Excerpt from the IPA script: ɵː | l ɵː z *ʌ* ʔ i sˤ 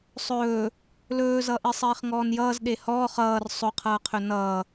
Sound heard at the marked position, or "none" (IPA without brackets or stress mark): ʌ